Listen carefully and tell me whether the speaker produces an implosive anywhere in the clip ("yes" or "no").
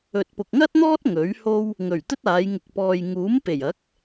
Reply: no